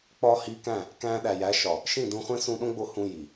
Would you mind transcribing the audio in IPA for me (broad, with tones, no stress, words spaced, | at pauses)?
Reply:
k͡pɒː˧hiː˧kæ̃˦˨ | kæ̃ː˧ɗæ˨jæ˨˦ ʃɒ˨ | ʃĩ˦˨dũ˧χʷẽ˦ sũ˧ɗõ˦ɡ͡bo˧ hũ˧ ji˨